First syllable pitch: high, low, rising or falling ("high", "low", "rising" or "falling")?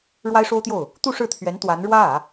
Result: high